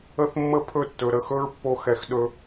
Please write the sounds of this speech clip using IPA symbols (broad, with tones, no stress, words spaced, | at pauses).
ə˦θmːə˦pʰɵ˦˨tːɵ˨ ɾə˨xɵ˦ɹpːo˧ xɛ˨xɗɵ˧